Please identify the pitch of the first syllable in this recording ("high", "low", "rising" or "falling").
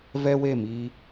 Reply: high